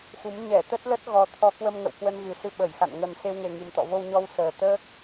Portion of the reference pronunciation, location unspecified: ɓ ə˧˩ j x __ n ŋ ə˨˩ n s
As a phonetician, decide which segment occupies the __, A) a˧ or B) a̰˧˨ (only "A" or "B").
B